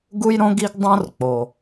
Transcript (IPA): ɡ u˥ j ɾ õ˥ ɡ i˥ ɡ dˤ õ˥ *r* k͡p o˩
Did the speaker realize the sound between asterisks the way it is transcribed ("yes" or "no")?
yes